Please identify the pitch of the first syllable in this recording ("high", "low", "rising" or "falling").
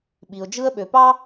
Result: low